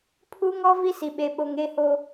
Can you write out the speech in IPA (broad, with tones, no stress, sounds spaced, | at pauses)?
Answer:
pʰ u˦ ŋ ɔ˦ v i˦ s i˨ ɓ e˨ ɓ o˨ ŋ e˦ h o˦